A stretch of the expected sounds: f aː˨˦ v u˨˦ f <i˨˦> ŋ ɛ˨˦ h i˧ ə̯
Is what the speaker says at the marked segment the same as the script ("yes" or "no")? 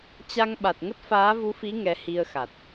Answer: yes